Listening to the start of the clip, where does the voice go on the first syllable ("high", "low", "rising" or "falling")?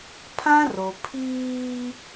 high